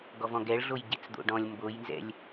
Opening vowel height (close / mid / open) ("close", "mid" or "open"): mid